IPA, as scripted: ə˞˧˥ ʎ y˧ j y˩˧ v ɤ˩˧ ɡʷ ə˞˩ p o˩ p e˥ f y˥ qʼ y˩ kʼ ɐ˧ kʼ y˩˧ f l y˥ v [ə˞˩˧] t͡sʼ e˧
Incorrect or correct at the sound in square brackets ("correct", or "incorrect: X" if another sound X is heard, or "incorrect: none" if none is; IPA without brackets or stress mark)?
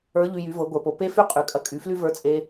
incorrect: ə˞˧